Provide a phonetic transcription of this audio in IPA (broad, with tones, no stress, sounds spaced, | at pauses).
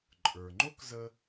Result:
ǃʼ ə˞˩ ŋ͡ǃ o˥ k z ə˧